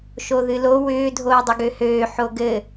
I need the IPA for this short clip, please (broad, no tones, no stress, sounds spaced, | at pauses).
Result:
ʃ o ð ɨ l o w ʏː dʱ oː dˤ ʏ ɡ ø h øː ħ o ɡ ɘ